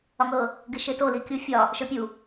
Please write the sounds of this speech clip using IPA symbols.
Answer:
ɒ ŋ ɤ | ɡ ɪ ʃ e t o l i kʲ u fʲ ɒ | ʃ ə˞ pʲ u

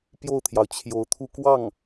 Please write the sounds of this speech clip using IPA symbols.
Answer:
p j o˥˩ ʊ̯ t̪ʰ j ɑ˩ ʊ̯ t͡ɕʰ j o˧˥ ʊ̯ t̪ʰ u˥˧ k w ɑ˥˩ ŋ

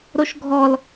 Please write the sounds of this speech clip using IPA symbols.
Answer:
ɾ o ʃ ɡʱ ɔ l

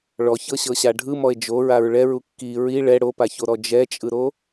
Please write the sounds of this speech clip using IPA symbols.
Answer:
ɭ ɔ ç ɤ ɕ ɤ ɕ a ɖʱ ɯ m ɔ e̯ d͡ʒ o ɹ a ɹ ɭ ɛ ɹ u kː i ɹ i ɭ ɛ ɽ o p a ç o ɾ ɔ d͡ʒ ɛ t͡ʃʼ ɯ ɾ o

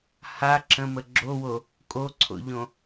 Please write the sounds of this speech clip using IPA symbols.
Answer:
h a ǁ ə̃ m ə ɡ͡ǁ o w o | kʼ o ǀʰ o̰ ʎ õ

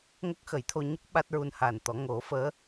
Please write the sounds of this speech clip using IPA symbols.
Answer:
ŋ ə˦˥ k̚ x ə˨˩˦ j t̪ʰ o˧ ɲ ə˦˥ k̚ ɓ a˦˥ t̚ ɹ u˧ n h a˨˩ n t̪ ɔ˨˩˦ ŋ o˨˩˦ f əː˧˥

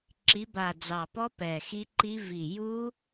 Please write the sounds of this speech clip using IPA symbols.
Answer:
ǁ i˨˦ b a˨˩ d͡z ɑ˨˩ p ɔ˦˥ p ɛ˨˩ x i˦˥ ǃ i˦˥ v i˨˩ j u˦˥

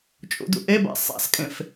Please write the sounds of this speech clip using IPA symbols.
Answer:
t͡ʃʼ ṵ d ṵ ʔ e b a̰ sˤ a̰ s kʼ ẽ f

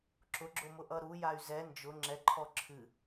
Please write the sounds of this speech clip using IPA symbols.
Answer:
ǁ ʊ ɡ͡ǁ ʊ m ʊ ʔ ʌ ɾ u j a y̯ z ɛ n d͡ʒ ʊ ŋ͡ǁ ɛ ǃʰ ɔ ǁʰ ɨ

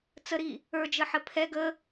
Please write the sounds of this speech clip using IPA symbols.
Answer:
t͡s ə ɾ i | ə˞ d͡ʒ ə ħ ə pʰ ɛ ɡ ə

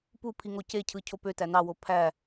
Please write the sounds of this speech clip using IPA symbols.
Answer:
p u pʰ i ŋ o c e cʰ ɯ cʰ o p ø t æ n ɑ w o pʰ æ

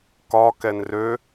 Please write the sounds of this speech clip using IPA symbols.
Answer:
k ɒ k ɛ n r ø

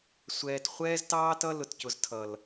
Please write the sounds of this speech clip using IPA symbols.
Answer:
sʷ ɛː˨ t χʷ ɛː˦ z t ɑː˦ t ʌ˦ l ʊ˨ t c ʊ˨ z tʰ ʌ˨ l

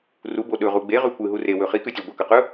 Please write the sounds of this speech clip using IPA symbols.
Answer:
r u b o ɗ ɵ ʁ u ɡ͡b e ʁ ʉ kʷ ɨ ɦ u r e w ɵ χ i k ʉ tʲ ʉ ɡʷ ɐ k ɐ q ɵ

